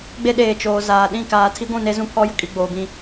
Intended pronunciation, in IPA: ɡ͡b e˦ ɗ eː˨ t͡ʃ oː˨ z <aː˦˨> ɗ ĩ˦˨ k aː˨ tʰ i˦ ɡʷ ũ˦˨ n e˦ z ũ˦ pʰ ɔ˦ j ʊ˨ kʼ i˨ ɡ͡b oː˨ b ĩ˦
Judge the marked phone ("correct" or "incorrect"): incorrect